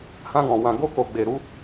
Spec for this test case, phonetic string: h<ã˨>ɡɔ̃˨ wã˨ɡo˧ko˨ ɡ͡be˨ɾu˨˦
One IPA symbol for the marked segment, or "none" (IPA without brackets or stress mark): ã˧